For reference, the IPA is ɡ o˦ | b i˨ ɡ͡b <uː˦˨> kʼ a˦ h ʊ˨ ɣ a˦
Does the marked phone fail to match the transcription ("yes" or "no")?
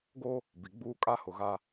yes